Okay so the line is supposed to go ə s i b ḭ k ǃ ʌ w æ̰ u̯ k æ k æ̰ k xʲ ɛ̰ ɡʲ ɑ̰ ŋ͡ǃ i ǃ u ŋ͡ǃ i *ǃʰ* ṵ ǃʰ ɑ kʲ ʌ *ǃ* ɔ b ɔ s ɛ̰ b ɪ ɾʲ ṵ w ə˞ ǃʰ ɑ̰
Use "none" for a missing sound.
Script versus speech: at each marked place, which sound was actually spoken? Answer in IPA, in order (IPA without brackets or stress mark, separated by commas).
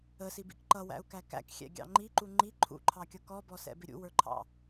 ǃʰ, k